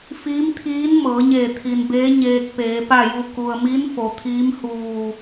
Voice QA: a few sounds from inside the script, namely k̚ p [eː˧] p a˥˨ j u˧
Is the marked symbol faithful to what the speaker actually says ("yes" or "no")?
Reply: no